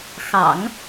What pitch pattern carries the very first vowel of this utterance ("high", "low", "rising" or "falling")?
low